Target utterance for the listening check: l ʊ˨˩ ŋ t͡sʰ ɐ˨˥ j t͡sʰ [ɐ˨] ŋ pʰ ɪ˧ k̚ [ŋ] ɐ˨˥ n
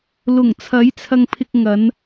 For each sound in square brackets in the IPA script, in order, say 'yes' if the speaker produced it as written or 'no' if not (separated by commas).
no, yes